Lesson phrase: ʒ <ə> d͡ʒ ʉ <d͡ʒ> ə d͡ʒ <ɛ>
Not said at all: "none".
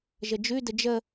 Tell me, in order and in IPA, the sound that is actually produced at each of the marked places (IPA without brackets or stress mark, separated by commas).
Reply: ə, d, ə